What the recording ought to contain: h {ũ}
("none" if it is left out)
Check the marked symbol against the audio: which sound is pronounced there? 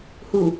u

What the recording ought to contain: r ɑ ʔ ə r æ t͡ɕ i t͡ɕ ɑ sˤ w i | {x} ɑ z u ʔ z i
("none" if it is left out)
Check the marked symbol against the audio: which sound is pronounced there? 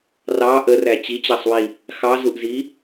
x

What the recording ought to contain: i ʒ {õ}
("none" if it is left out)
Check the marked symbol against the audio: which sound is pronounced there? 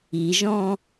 ɔ̃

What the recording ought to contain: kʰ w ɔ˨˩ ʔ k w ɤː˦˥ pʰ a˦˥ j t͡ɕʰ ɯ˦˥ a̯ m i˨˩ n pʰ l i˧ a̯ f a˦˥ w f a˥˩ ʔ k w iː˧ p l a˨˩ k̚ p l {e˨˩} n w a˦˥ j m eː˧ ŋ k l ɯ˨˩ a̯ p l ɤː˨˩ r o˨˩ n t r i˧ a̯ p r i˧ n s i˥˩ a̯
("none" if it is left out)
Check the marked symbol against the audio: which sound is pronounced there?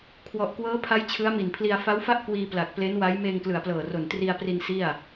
e˦˥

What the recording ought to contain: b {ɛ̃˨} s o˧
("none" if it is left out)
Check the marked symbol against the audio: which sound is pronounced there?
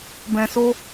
ɛ̃˨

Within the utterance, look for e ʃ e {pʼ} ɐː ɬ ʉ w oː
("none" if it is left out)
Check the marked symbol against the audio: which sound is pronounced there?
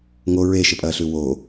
pʼ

